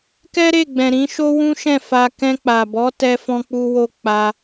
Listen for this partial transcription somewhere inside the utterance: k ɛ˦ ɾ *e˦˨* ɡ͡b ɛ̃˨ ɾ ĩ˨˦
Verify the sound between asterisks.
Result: correct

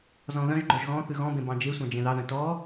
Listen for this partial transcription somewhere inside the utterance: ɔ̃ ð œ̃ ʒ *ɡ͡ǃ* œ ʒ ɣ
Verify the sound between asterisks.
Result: correct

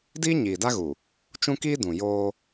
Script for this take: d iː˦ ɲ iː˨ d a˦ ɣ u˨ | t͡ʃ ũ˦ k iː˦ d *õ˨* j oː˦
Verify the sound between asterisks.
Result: incorrect: ũ˨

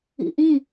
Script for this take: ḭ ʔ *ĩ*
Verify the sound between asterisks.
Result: correct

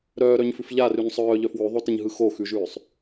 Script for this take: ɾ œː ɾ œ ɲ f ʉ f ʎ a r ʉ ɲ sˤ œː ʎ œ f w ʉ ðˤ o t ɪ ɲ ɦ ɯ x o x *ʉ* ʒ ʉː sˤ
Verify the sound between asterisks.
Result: correct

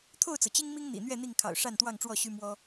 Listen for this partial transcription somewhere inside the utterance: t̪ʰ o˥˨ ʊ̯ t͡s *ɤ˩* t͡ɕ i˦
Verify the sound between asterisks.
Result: correct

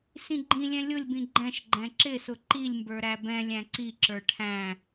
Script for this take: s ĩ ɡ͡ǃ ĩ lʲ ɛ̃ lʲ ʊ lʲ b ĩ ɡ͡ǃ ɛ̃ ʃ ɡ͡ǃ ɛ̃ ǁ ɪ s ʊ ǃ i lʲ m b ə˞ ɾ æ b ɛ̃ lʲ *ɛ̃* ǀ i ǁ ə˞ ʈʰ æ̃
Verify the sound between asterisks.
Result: incorrect: æ̃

